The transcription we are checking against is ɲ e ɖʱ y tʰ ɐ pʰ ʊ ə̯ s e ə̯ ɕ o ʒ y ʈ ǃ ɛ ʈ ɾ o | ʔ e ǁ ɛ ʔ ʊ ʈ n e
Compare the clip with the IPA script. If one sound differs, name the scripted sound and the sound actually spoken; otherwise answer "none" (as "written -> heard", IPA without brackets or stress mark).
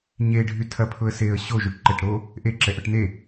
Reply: none